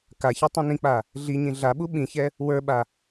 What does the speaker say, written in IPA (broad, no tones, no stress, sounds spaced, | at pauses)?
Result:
k a ç ɛ tˤ ĩ n ĩ k͡p a | ɮ i ɲ ĩ ɮ a ɓ u ɓ ĩ ç ɛ | w ə˞ ɓ a